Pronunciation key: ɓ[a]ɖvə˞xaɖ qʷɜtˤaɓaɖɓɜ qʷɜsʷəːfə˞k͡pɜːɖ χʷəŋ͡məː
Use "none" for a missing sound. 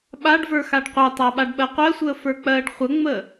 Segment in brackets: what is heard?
a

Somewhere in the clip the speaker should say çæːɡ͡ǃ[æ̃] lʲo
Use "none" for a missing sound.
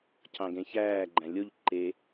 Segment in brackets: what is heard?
æ̃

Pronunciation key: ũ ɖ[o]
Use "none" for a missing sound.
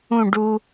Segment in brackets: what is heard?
u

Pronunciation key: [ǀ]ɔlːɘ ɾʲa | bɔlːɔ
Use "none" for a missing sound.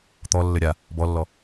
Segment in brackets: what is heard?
t̪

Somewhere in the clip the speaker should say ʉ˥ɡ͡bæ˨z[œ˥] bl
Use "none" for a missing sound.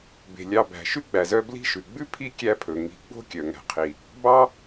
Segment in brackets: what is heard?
œ˦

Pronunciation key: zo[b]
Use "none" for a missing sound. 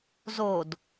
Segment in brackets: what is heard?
d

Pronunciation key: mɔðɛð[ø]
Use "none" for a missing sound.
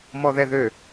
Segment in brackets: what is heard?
ø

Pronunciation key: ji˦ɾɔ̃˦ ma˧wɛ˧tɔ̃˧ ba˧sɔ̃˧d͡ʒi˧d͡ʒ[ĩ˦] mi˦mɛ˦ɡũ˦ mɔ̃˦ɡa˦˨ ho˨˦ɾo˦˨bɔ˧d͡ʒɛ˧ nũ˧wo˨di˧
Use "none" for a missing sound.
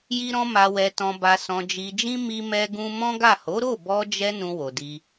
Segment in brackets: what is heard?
ĩ˦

